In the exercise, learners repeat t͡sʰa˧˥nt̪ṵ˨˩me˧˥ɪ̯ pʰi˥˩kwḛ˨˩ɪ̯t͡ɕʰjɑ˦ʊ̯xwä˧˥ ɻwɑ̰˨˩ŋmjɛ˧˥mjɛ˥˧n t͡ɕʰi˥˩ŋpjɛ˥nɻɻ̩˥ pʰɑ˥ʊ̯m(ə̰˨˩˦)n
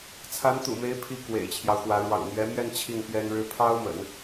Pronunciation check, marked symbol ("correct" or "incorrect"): correct